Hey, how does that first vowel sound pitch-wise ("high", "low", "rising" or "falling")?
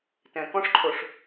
low